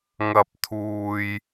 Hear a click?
no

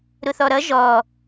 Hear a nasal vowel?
no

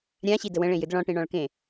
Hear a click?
no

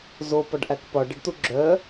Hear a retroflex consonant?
yes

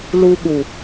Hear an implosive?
yes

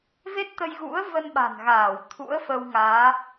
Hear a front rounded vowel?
no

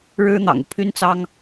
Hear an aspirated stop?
yes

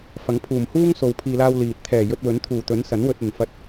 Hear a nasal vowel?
no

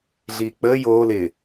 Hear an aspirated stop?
no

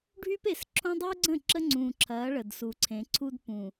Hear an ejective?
no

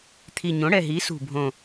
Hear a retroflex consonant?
yes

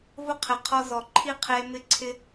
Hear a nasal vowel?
no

